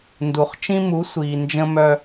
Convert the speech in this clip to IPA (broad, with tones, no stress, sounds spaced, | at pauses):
n d u˩ χ t͡ʃ ĩ˦ m u˩˥ sʷ iː˩ n d͡ʒ ə̃˦ m œ˦˨